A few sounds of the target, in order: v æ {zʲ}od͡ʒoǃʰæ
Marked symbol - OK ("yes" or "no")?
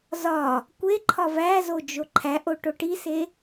no